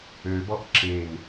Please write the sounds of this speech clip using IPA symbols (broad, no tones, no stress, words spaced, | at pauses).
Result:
øbɔʔ ǁen